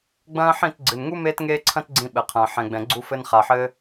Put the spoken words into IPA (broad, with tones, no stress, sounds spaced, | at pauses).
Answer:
ɡ͡b ɐ̃ː˦ ħ ĩ˦˨ t ɡ͡ǀ ɨ˨ n ŋ u˦ m eː˦ t ŋ eː˦ ǀʰ ɐ̃˦ t ɡ͡ǀ ĩ˧ ɓ ɘ˨ qʰ ɐ̃ː˨ ħ ɛ̃˨ ɡ͡b ɛ̃˨ ɡ͡ǀ u˧ f ɘ˧ n χ a˨ ħ ɘː˧